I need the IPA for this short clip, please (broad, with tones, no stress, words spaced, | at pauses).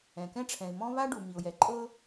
ɛ̃˩kɛ̃˦ʈ͡ʂʰɛ̃˩ɪ̯ mɔ̃˦ βa˦ɖu˩ mi˩ʊ̯jɛ˩ ǃʼɤ˦